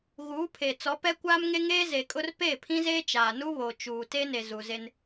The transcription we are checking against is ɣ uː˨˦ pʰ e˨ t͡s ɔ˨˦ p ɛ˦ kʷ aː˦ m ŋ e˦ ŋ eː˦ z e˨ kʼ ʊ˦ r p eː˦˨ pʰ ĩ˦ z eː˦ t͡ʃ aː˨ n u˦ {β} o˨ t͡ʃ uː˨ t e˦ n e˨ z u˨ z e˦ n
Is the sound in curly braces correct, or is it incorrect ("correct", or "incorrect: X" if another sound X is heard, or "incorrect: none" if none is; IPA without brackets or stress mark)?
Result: correct